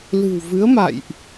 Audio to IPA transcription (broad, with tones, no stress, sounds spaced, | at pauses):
l ɨ̤˨˩ w v ɨ˨˦ ə̯ m a̰˧˨ j ʔ